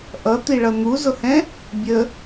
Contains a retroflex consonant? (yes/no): yes